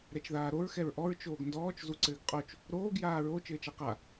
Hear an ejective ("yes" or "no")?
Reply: yes